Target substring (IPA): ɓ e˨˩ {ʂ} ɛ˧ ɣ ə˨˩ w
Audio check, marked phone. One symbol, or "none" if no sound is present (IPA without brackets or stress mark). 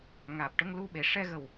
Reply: ʂ